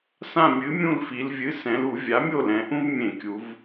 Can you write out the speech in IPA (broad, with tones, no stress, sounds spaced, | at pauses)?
s ã˦˨ mʲ ɨ˩˥ mʲ ũ˦˨ l f i˩˧ l vʲ ɨ˩˧˩ s ɛ̃˩˧ l u˧˩˧ vʲ a˩˥ mʲ o˦˨ l ɛ̃˩˧ ʔ ũ˦ v mʲ ẽ˧˩˧ kʲ u˩˧ v